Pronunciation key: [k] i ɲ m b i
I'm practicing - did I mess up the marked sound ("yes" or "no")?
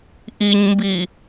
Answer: yes